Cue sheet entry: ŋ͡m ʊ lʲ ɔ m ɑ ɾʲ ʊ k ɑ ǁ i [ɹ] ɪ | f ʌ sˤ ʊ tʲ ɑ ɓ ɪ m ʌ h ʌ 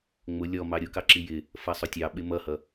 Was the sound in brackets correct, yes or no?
no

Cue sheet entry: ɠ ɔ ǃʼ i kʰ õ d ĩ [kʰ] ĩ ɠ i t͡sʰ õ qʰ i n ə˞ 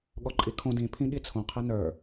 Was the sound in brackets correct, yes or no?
no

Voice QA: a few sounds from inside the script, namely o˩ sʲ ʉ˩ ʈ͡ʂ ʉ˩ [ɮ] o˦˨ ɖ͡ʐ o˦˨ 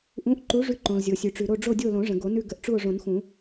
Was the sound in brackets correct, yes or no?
no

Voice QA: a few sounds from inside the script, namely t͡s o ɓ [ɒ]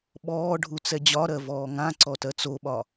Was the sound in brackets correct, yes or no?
yes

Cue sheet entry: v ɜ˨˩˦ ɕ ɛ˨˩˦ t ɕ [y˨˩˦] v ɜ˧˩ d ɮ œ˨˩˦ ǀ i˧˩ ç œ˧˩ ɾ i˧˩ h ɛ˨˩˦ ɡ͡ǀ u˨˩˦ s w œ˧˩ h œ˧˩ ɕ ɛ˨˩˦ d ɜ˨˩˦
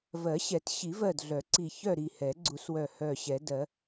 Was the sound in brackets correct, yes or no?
no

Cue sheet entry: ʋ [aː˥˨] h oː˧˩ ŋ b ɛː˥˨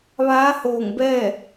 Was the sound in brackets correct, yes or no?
no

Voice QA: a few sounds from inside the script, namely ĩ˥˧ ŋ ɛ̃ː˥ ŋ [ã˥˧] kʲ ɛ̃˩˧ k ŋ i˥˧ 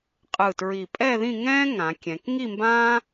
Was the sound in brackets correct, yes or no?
no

